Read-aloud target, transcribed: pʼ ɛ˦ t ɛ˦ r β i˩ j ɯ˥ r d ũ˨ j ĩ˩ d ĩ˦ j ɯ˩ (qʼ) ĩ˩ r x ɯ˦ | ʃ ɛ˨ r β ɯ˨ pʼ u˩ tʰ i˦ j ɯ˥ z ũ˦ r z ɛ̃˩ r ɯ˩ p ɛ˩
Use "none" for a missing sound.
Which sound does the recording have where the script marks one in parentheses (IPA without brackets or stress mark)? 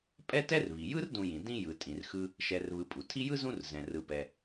tʼ